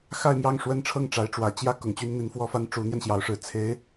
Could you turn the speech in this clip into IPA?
xa˥˧ɪ̯mjɑ˥˩ŋ ʂwə˥nʈ͡ʂʰɤ˥˩ŋ ʈ͡ʂa˧˥ɪ̯ʈ͡ʂwä˨˩ t͡ɕjä˥ kʊ˨˩ŋt͡ɕy˥nn̪i˧˥n fwɔ˥fa˥n ʈ͡ʂu˧˥n̪jɛ˧nɕjɑ˧˥ʊ̯ʂɻ̩˨˩ t͡sʰe˧˥ɪ̯

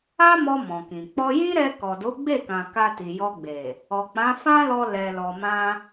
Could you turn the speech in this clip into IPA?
a˦mɔ˧ mɔ̃˨kĩ˨ k͡pɔ˧jĩ˦ɾɛ˧ kɔ˨do˨˦ɡ͡be˦˨kã˨ ka˧ti˨jɔ˧ɡ͡be˨ | ɔ˨k͡pã˨˦ fã˦lɔ˧ lɛ˨lɔ˨mã˧

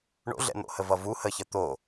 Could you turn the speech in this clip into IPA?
ɳo̰ɮɛ̰n̪o̰hə vʌvu həçə t̪o

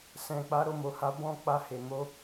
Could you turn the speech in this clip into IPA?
sɛ̃˨k͡pa˨˦ ɾo˧mo˨ha˨˦ bɔ̃˦˨k͡pa˧ he˨mo˨˦

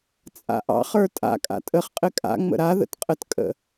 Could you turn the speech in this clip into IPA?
t͡sʼa̰ʔɑ̰χ ə˞tʼa̰ kʼa̰tʼəχ qʼɘkʼa̰ ŋ͡mə̰ɾa ðə̰tqʼətkʼə̰

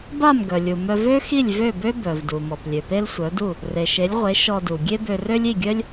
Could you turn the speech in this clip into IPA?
ba˥˩mɡœ˩lʲu˩ mœ˧v ø˥xi˥˩lʲ vø˥˩bø˥ bœ˩vdu˩mɔ˩p lʲø˩pe˥lsʷœ˩˥du˥˩ | re˩ʃe˩˥lʲʁʷe˩˥ ʃɔ˧du˩ ɡʲe˥bø˧rø˥lʲ i˥˩ɡʲœ˥lʲ

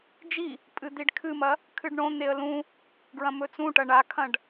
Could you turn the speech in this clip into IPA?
d͡ʒi | pʼɨd̪iɖkʰɨmɐ | kʰɨɖɳõn̪eə̯ lũ | ɡɹɐ̃mɵt͡sũʈɐ ɳakʰɐ̃ɖ

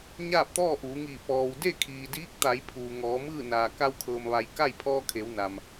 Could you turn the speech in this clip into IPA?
ɲaː˥˨p̚t̪ɔː˥˨ʔuː˩˧ŋiː˧˩ pɔː˩wde˥˨ kʰiː˩diː˧˥k̚t̪a˩˧j pʰuː˩ŋɔː˩˧mɯː˥˨ naː˩ka˧wkʰɤː˩m ʋa˩j ka˥˨j pʰɔː˧kʰe˩˧w na˩m

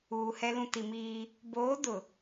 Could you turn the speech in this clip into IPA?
uː˨hɛ˦lũ˦ ti˨miː˦ | boː˨˦ dʊ˨

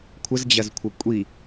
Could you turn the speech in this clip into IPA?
kʷʰəzd͡ʑɐzkʷʰə kʷʼi

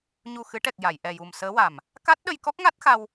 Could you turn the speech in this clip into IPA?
ɲu˨˩xɨ˨˩˦ʈɛ˨˩k̚ ja˨˩˨j ʔɛ˨˩ju˨˩msəː˧˥wa˨˩m | ka˦˥t̚ɗə˧j kɔ˦˥k̚ŋa˦˥t̚xa˧w

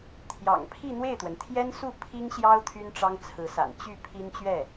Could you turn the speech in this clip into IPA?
t̪ʰjɑ̰˨˩ŋpʰi˥˧n̪we˥˩ɪ̯t̪wə˩n t̪ʰjɛ˥nsu˥˩ pʰi˥ŋɕjɑ˥ʊ̯ t̪ʰy˥nʈ͡ʂɑ˥ŋt͡sʰɹ̩˧˥sa̰˨˩n t͡ɕy˥˩ pʰi˥nt͡ɕɥɛ˥˩

